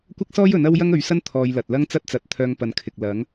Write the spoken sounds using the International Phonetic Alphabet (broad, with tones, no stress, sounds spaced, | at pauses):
kʷ ɐ˥ k̚ s ɔː˥ j ɵ˨˥ n ɐ˥ w j ɐ˥ ŋ ɵ˨˥ ɥ s ɐ˥ n t̪ʰ ɔː˨˧ j l ɐ˨ t̚ l ɐ˥ ŋ t͡s ɐ˥ t̚ t͡s ɐ˨˥ t̚ t̪ʰ œː˧ ŋ p ɐ˨ n kʰ ɪ˨ k̚ l ɐ˨˥ ŋ